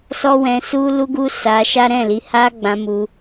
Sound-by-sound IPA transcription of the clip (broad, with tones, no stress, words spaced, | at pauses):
sɔ˦wɛ̃˧su˦ lu˦ɡu˦ sa˧ʃa˦ ɾɛ̃˦˨ li˨˦ha˦ɡ͡bã˧ mu˧